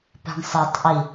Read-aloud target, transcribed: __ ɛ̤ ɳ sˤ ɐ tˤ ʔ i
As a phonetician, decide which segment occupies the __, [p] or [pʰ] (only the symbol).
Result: p